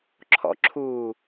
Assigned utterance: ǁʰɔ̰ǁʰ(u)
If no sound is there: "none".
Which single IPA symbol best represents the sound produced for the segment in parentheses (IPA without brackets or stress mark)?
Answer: uː